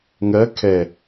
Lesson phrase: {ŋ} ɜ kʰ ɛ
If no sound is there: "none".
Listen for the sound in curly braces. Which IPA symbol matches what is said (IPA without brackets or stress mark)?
ŋ